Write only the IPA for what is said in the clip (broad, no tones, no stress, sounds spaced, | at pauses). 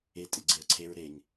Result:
e tʼ ɪ ɡ͡ǀ e ɐ̯ ǀʰ e ɹ ɾ e ŋ